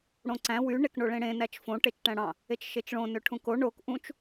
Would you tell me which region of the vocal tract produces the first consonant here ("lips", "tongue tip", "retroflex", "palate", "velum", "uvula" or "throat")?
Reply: retroflex